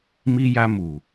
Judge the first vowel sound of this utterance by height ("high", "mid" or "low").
high